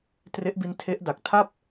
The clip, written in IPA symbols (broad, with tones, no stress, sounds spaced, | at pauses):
t r e˦˥ ʔ b i˦˥ n tʰ e˦˥ ʔ d a˨˩ k̚ tʰ a˥˩ p̚